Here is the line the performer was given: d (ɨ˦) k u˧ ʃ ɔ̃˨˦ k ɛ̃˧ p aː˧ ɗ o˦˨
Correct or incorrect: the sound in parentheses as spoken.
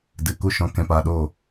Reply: incorrect: ɨ˨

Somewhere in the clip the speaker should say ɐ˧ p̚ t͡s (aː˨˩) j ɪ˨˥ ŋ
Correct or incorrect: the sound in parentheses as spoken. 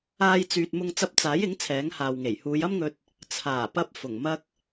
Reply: incorrect: aː˨˥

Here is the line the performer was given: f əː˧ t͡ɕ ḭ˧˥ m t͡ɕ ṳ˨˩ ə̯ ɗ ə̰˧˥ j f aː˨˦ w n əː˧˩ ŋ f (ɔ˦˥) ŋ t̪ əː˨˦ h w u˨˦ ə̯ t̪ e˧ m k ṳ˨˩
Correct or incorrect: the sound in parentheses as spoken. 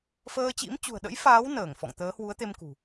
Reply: incorrect: ɔ̰˧˨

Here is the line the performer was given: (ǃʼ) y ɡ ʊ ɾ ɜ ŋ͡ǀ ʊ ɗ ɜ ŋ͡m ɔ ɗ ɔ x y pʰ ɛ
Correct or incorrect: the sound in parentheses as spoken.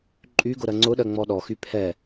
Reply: correct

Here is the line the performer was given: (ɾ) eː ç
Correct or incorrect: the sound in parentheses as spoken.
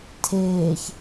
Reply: incorrect: tʰ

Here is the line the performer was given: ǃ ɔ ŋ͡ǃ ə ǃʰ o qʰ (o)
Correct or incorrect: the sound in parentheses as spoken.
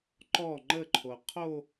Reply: correct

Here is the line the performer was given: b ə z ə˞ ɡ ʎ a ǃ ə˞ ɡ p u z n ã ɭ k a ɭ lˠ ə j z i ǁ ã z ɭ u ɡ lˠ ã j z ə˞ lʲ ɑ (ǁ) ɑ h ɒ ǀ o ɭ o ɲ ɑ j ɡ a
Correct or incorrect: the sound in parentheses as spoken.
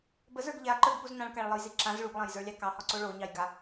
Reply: incorrect: k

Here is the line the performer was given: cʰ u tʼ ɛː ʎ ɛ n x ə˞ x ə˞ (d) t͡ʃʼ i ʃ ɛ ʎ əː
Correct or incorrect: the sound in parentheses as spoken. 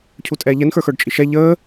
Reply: incorrect: ɖ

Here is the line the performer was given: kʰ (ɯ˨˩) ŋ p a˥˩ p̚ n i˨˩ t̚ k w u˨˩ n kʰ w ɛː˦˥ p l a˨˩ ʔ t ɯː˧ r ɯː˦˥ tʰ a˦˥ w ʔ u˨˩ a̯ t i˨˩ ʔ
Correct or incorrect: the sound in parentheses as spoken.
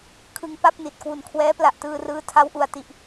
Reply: incorrect: ɯ˧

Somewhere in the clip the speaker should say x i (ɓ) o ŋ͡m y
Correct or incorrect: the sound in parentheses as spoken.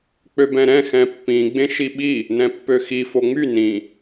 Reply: incorrect: f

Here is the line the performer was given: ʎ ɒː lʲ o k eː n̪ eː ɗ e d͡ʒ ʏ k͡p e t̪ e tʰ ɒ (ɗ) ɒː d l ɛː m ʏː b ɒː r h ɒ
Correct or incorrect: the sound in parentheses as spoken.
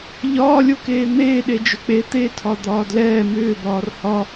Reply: incorrect: d̪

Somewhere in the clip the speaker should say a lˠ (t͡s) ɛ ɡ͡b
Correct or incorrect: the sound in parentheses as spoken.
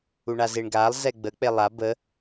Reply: incorrect: z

